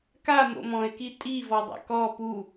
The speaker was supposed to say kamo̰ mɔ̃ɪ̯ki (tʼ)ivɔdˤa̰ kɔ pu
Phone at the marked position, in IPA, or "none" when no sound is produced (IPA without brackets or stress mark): tʼ